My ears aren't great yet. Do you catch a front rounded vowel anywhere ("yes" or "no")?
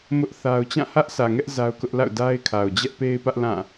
no